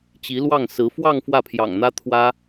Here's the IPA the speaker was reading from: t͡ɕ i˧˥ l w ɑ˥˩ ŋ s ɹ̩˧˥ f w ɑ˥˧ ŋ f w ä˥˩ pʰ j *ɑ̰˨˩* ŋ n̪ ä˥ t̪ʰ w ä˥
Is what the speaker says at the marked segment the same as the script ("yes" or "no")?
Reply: yes